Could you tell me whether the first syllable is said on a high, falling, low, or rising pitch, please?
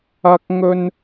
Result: high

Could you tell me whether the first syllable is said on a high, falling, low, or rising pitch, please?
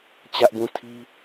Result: high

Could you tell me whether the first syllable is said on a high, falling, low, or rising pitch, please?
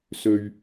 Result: low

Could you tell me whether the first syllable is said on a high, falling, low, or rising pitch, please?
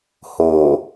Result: low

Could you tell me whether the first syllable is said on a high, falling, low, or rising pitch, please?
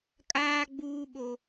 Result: high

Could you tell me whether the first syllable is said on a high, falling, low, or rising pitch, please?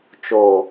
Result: low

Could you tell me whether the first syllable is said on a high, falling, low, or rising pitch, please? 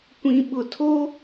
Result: low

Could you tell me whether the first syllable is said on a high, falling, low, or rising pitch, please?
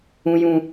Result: high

